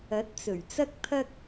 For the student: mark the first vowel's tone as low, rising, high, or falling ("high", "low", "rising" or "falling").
rising